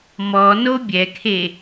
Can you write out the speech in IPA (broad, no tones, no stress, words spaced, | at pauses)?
mɔno bʲɛkʰe